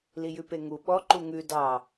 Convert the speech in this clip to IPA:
l i j ʉ p e ŋ u ɓ ɔ ǃ u ŋ ʉ d ɑ

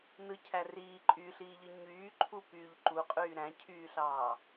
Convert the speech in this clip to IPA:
n ɯ cʰ æ r iː ǃʼ y ɬ iː ʎ ɯ ɲ yː ǃʰ u p yː ʎ ǃ u qʼ yː ɾ æ̃ cʰ yː ɬ ɑː

